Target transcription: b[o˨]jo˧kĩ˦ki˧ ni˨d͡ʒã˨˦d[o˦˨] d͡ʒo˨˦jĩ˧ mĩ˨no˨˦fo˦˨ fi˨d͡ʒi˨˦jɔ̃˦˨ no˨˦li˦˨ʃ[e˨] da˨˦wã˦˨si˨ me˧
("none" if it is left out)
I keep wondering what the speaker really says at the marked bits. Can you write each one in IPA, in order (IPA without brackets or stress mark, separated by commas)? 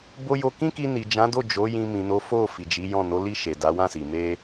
o˧, o˦˨, e˨